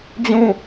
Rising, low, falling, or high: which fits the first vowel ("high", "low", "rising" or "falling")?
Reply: falling